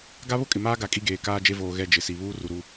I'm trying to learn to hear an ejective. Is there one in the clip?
yes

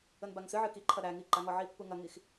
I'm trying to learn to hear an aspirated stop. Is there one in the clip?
yes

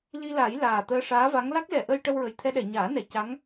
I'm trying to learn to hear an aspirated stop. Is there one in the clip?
yes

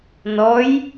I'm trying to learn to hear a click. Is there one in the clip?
no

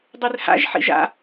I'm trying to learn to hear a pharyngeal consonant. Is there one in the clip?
yes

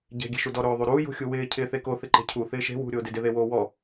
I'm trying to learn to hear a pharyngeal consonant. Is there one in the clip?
no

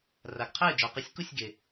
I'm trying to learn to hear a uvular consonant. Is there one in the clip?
yes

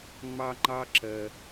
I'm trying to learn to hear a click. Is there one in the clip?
yes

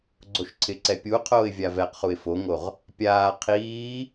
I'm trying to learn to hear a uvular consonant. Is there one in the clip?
yes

